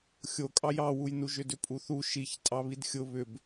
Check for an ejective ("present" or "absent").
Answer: present